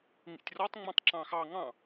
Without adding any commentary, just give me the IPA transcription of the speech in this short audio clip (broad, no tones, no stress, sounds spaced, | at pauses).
ŋ ḭ tʲ r ɔ tˤ ŋ͡m ɑ̃ tˤ ǁ ɑ̃ x ɑ ŋ ɑ̃